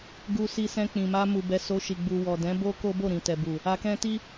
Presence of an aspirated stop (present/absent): absent